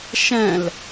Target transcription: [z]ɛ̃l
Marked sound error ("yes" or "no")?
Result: yes